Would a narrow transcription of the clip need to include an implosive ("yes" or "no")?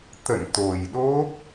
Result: yes